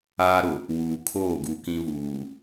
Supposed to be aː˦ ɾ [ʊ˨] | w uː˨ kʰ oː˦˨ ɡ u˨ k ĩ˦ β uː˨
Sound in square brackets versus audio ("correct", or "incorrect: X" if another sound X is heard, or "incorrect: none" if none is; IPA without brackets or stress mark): correct